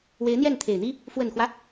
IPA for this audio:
we˧˥ɪ̯n̪jɛ˥˩nt̪ʰe˨˩ɪ̯n̪i˥ | fwə˨˩nxwä˦

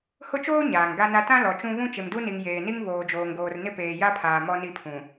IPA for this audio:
hʊ˦t͡ʃoː˦ ɲaː˨ŋɡa˦na˦ tã˦ lɔ˨t͡ʃũ˦ βũ˦t͡ʃɪ˨mdu˦ni˨ŋ jeː˨ni˦ŋ βoː˨d͡ʒoː˨ŋɡoː˨r nɪ˦peː˨ ja˦pʰaː˨ mɔ˦ni˦˨pʰũ˨

